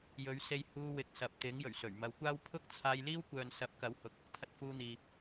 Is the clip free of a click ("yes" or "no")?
yes